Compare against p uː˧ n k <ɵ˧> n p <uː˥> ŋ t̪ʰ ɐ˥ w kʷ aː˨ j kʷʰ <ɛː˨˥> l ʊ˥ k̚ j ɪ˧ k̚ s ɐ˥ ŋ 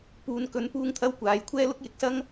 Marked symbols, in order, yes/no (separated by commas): yes, yes, no